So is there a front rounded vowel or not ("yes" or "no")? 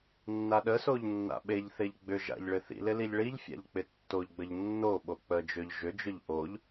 yes